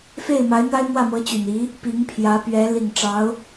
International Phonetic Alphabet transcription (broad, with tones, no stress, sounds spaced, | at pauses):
f e˥˩ ɪ̯ m a˧˥ ɪ̯ n̪ a˥ ɪ̯ m w ä˥˩ m ɤ˧˥ t͡ɕ y˨˩ n i˧˥ | p i˧˥ ŋ pʰ j ä˧˥ p ɥ ɛ˧˥ l i˨˩ ŋ ʈ͡ʂ ɑ˧˥ ʊ̯